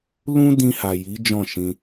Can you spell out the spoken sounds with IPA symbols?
lũ˦dĩ˧ ha˨ ji˨˦ d͡ʒɔ̃˦˨ʃĩ˧

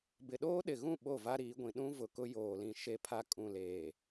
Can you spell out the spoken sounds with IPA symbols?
bɪ˨ɗoː˦ɗɪ˨ɣũ˦˨ ɓo˦˨va˦ɾiː˨˦ɡʷĩ˨ ɗũ˦ vʊ˨kʊ˦ joː˨lĩ˨ ʃe˦pʰa˦ kʼũ˨leː˨

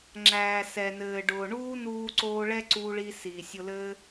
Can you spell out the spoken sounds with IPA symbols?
ŋ͡ǁæː˨sɛ˨nɘː˨ɖʊː˨ ɳuː˦ nuː˧ǀoː˧ ɭɛ˦ǀuː˧ɭi˧ siː˨sʲʊ˧lɘː˦

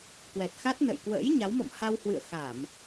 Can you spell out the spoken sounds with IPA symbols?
kwɛ˨˩t̚xa˦˥t̚ nə̰˧˨j kwə̰ː˧˥j ɲa˨˦wmɔ̰˧˨m ha˧whwɨ̰˧˨ə̯ xa˧˩˨m

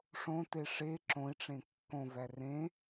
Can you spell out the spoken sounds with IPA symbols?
ʂõte ʂe ǁõi̯ʈ͡ʂẽ kːõvæ rẽ

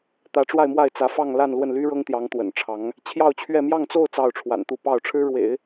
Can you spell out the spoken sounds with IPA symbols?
t̪ä˧˥ʈ͡ʂwa˥˧ɪ̯ mwa˥˩ɪ̯t͡sä˧˥fɑ˥˧ŋ la˥˧nlwə˥˩nly˥ ɻɤ˥ŋt̪jɑ˧˥ŋt̪wə̰˨˩nʈ͡ʂʰɑ˧˥ŋ | t͡ɕʰjɑ˥˧ʊ̯t͡ɕʰɥɛ˥˧ mjɑ˥˧ŋt͡so˥˧ʊ̯ t͡sɑ˥˩ʊ̯ʈ͡ʂʰwa̰˨˩nt̪u˥˧pɑ˥˩ʊ̯ ʈ͡ʂʰɻ̩˥ɻwḛ˨˩˦ɪ̯

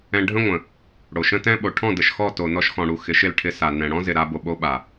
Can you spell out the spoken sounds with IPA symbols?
ɛ̃˧ɖʱə̃˦ŋʷə̃˨ | ɽo˨ʃə̃˦tɛ̃˦ ɓo˨ʈʰɔ̃˦˨ də˨ʃxɔ˦˨ to˨nɔ˧ʃxɔ̃˨ɽu˨ xɪ˨˦ʃɪ˦˨lʈʰɪ˧ sa˨nɛ̃˨ ɽɔ̃˦zɪ˨ɾa˧ bo˨ɓo˧ɓa˨

